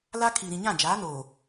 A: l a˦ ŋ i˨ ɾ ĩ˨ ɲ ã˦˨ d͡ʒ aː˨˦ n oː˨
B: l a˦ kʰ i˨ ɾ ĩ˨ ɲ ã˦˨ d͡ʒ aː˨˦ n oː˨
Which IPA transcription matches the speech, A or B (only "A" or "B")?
B